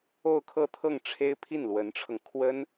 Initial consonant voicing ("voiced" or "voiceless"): voiceless